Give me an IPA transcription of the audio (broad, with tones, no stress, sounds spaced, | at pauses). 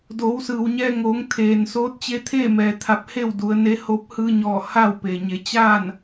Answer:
d oː˩˧ w s ɯː˩ w ɲ ɛː˧ ŋ oː˩˧ ŋ t̪ʰ eː˩ n s oː˧˥ t̚ t͡ɕ e˧ t̪ʰ eː˥˨ m ɛː˩ t̪ʰ a˧˥ p̚ h e˥˨ w d u˩˧ ə̯ n e˧˥ h o˧˥ p̚ h ɯː˧ ɲ ɔː˧˩ h a˥˨ w p e˩ ɲ e˩˧ t͡ɕ aː˥˨ n